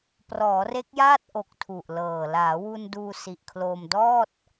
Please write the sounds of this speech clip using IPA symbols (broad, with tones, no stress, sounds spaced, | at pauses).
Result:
p r ɔː˩˦ r e˦˥ k̚ j aː˥˩ t̚ ʔ o˨˩ k̚ tʰ u˨˩ ʔ l ɤː˨˩ l aː˩˦ w u˧ n d uː˧ s i˨˩ ʔ kʰ l oː˧ m d ɔː˥˩ t̚